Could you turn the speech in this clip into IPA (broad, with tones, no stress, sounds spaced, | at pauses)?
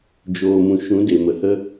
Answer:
d͡ʒ oː˨ m ũ˨ ʃ ũ˨˦ d e˨ m ə˨ h ə˦